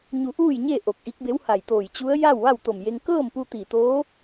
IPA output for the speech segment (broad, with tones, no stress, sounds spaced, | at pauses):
ɲ u˧ ʔ uː˥˨ j ɲ e˥˨ ʔ o˧˩ k̚ ʔ i˧˥ k̚ b e˧˥ w h a˧˩ j t̪ oː˧˩ j t͡ɕ u˧˥ ə̯ j a˥˨ w ʋ a˥˨ w t̪ o˧˩ m j e˧ ŋ k ɤː˥˨ m p u˧ t̪ i˧˩ t̪ oː˧˥